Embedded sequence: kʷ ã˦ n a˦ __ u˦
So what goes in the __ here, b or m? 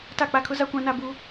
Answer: b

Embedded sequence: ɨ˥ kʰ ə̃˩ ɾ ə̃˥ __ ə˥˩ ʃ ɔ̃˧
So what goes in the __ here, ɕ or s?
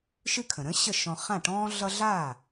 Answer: ɕ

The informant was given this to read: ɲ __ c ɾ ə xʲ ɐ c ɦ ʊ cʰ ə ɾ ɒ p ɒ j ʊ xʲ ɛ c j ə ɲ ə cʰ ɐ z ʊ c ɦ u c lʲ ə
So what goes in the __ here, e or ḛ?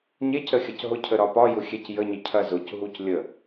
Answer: e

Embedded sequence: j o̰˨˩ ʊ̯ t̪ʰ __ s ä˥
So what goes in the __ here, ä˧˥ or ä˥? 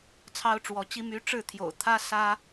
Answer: ä˥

